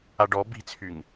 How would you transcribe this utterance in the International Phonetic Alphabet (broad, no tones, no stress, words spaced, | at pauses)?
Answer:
aɖɔ bi̤t͡sʰyŋ